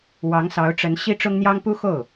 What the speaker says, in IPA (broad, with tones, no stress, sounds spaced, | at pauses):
w ɑ˧˥ ŋ s ɑ˧˥ ʊ̯ ʈ͡ʂ ə˧˥ n ɕ i˥ ʈ͡ʂ ʊ˥ ŋ n̪ j ɑ˥ ŋ p u˥ x o˥˩ ʊ̯